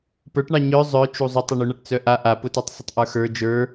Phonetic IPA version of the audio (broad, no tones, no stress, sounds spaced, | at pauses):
p ə˞ ʈ ɳ ɑ ɲ œ zˤ œ t͡ʃ u zˤ ʊ tˤ ʊ ɳ u ɳ a ʈ t͡s œ ʔ a ʔ a p ʊ t ɛ tˤ sˤ ʊ tˤ ʔ ə˞ x ə˞ d͡ʒ ə˞